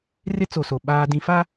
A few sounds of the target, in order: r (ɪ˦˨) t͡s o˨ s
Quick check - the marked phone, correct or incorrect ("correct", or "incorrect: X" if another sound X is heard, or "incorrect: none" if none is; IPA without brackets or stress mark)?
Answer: incorrect: ɪ˦